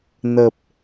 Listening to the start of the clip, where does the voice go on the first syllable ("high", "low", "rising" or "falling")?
low